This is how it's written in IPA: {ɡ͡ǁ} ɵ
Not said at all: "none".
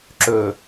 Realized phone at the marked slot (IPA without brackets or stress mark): ǁ